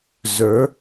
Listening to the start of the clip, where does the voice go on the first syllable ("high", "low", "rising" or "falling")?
rising